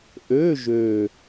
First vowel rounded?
yes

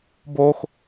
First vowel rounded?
yes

